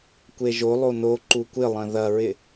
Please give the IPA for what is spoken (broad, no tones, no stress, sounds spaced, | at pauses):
kʷ e ʒ o lˠ o n o ǃ u kʷ ɪ lˠ ɐ̃ ð ɐ ɹ ɪ